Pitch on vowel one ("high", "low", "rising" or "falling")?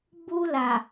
high